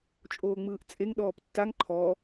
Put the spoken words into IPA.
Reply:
t͡ʃʼ oː ŋ͡m ɯː ʔ t͡sʼ e ŋ ɗ ɔː p tː a ŋ ǃʰ ɔː

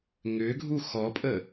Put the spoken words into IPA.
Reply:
ŋ ʏ ɡʱ u x ɔ pʼ ə

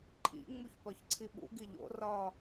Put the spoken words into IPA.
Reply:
ǃʼ ḭ ŋ͡m u ç p ɒ ç ǀʰ i ɓ ṵ ɡ i ʎ o̰ r ɒ

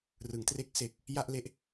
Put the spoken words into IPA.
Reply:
r ɯ˩˦ ŋ t r e˦˥ k̚ s e˨˩ k̚ | j a˥˩ ʔ l e˥˩ ʔ

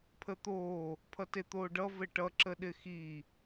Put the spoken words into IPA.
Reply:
pʰ ə t̪ oː | pʰ ʌ t e t̪ oː ɖ ʌ v ɘ ʈ ʌ ǁ ə ɗ ɪ x i

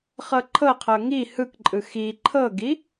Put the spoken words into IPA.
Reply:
χ ɤ ǃʰ ɤ qʰ ɤ ŋ i h ɯ k ǃʼ ɯ x i ǃʰ ɤ ɡ i

